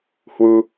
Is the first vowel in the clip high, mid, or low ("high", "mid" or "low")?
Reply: high